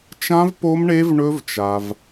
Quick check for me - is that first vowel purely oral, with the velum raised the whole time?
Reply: no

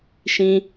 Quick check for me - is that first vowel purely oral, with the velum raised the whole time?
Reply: no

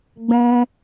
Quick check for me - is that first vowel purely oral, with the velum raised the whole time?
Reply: no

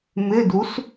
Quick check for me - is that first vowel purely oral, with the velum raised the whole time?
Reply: yes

